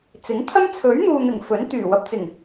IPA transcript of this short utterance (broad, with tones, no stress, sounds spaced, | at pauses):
t͡s ɪ˨˥ ŋ t̪ʰ ɐ˥ m t͡sʰ ɵ˨˥ ɥ n̪ uː˨ n̪ ɪ˨˩ ŋ f ɵ˨˥ n t̪ yː˨˩ w ɐ˨ p̚ t͡s ɪ˨˩ ŋ